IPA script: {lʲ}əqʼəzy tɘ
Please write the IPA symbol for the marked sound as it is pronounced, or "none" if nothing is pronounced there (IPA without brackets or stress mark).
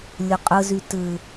lʲ